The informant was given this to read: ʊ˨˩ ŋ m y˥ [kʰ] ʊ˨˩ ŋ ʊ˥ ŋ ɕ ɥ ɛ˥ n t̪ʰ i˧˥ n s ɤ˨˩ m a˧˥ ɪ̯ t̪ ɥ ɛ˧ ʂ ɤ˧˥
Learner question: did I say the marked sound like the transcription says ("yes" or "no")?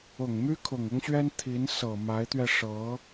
yes